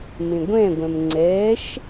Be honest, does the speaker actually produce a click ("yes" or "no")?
yes